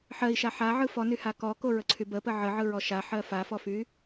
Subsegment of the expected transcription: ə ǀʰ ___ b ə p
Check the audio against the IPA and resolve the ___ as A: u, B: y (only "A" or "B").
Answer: B